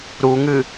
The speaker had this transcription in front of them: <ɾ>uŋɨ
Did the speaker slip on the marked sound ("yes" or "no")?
no